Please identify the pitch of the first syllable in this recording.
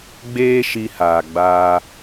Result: high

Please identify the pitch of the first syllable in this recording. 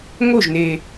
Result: falling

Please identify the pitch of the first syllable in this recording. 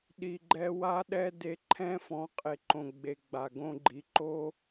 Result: low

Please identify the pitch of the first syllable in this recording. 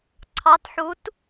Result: rising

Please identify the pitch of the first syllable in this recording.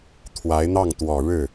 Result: rising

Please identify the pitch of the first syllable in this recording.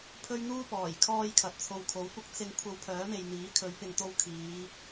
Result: high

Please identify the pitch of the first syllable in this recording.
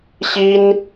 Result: high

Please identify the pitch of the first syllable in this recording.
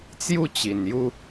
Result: falling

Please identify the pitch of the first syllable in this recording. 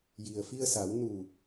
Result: low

